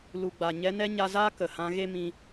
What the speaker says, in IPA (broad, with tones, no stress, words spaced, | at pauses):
lu˨ɡ͡ba˨ ɲɛ˧nɛ˦ɲa˧zaː˦ kə˨hã˧ ɣe˦mĩ˧